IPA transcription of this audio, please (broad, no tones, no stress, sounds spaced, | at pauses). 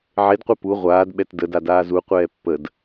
ʕ e d qʷ ɛ p u ʁʷ aː d ɓ ɛ t d ə d a d aː z u qʷ ɛː pː ə d